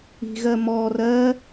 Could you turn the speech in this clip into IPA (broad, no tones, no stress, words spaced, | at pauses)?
i̤ɣɜ mɔ rɜ